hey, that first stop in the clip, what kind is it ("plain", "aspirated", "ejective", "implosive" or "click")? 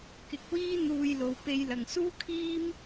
plain